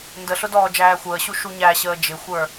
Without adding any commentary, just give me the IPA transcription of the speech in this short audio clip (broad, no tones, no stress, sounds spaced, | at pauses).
n d ə ɬ ʊ d ɔː d͡ʒ æː xʷ əː ɕ u ʃ u ɲ æ ɕ əː d͡ʒ ɪ xʷ ə˞